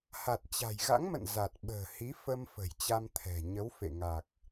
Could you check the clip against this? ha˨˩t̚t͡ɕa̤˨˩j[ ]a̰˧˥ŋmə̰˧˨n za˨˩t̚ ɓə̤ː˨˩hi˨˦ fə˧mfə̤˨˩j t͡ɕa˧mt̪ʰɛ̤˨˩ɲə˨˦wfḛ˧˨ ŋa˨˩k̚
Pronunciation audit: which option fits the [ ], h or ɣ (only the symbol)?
ɣ